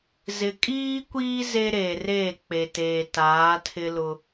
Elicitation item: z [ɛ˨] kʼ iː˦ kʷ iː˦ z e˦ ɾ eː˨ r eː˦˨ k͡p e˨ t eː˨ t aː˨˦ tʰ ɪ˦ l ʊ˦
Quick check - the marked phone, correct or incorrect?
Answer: incorrect